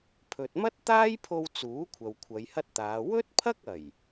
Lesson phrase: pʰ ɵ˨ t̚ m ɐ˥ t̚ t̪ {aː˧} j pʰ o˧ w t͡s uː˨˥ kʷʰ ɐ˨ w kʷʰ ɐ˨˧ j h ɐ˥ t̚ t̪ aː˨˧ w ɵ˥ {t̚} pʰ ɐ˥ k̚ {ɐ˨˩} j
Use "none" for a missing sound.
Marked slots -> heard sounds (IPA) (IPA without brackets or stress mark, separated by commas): aː˥, t̚, ɐ˨˩